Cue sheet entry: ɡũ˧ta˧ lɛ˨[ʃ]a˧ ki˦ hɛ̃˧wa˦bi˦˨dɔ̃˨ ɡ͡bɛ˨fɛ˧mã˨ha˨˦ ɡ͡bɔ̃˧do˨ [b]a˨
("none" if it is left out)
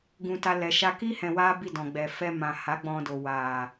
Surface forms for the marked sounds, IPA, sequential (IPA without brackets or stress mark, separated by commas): ʃ, w